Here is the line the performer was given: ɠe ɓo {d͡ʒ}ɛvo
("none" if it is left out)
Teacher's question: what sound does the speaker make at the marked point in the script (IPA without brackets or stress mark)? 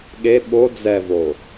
d͡z